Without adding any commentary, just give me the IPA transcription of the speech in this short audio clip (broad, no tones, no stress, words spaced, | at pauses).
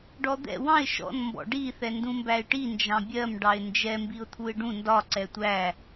ɖɔd̪ɛ̰ wɑ̃ɪ̯ ʃɔ̰n mbɔ̰ɖi θɛndũmbæɪ̯ʈi nd͡ʒɑ̃bʲɜm ɖɑɪ̯nd͡ʒɛ mbiʊ̯t̪ʰuɪ̯ɖũ ndɒ ǀɛtʷæ